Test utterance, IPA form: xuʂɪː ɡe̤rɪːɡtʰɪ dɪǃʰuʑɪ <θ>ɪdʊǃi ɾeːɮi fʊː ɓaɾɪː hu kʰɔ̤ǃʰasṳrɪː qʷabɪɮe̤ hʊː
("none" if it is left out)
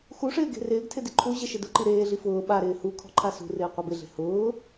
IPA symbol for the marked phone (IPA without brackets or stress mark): ʃ